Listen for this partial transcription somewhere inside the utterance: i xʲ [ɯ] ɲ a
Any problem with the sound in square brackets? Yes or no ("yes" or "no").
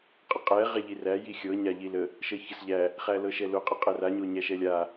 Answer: yes